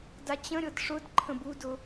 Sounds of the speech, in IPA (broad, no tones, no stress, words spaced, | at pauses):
dat͡ɕə̃ɾʲɤd ʂʊd ǃʰə̃budʊ